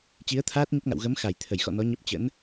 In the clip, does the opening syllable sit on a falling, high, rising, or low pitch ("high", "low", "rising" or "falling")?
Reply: rising